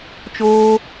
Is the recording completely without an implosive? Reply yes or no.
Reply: yes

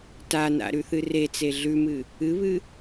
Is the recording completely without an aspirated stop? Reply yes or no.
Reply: yes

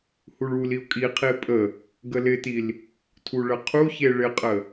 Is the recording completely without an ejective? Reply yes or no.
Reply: no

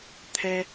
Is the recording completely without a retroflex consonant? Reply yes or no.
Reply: yes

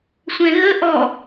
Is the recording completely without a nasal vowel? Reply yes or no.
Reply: no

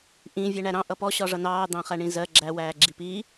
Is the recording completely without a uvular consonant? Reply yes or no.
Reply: no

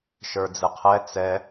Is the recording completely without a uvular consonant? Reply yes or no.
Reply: no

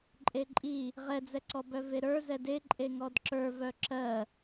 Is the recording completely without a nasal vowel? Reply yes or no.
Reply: yes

